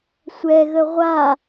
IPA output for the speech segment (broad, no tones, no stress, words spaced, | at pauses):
sʷɛɣə ʁʷa